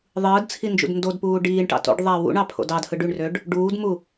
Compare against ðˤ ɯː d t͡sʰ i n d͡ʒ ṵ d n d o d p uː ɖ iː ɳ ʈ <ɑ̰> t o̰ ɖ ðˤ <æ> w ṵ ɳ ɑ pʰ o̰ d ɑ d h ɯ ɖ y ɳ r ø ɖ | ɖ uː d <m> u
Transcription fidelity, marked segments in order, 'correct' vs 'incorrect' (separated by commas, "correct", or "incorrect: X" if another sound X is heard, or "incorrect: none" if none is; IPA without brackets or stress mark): correct, correct, correct